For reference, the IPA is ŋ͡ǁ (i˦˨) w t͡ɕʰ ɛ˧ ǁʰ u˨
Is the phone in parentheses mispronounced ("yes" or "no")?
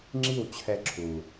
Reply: no